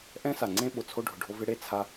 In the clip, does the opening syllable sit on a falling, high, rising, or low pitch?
high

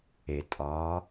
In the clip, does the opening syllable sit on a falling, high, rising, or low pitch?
low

